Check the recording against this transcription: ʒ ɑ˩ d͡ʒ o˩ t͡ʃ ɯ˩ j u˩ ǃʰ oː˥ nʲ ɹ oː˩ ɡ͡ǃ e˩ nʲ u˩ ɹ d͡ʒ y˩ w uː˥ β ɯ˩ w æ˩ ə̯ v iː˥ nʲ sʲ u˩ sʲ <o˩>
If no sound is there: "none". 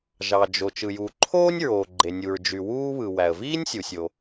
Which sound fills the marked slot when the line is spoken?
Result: o˩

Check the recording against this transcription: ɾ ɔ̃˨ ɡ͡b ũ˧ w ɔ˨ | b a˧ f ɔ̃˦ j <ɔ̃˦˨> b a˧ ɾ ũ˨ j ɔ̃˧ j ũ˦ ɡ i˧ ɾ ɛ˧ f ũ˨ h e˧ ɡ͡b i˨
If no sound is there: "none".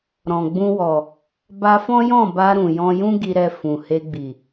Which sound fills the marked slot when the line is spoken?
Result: ɔ̃˦˨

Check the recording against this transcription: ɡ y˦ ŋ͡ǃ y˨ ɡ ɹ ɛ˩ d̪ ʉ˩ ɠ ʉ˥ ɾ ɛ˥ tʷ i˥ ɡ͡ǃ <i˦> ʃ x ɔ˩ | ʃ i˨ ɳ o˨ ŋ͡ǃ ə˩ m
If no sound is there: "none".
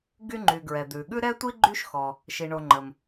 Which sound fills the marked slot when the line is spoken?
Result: y˦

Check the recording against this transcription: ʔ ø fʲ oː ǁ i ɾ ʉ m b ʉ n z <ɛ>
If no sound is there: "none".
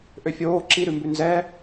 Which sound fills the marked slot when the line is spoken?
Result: ɛ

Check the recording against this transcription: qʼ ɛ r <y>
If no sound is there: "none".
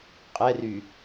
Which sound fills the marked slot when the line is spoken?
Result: y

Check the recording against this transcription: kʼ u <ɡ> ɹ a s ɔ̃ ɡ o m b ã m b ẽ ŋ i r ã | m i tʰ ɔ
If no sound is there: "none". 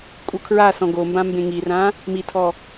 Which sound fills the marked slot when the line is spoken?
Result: kʰ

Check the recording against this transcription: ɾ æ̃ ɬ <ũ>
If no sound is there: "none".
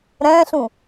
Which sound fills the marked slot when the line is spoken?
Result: ũ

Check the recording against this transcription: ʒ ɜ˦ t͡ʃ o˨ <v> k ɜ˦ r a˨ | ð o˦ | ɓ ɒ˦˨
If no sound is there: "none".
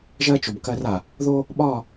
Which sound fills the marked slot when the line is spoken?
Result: b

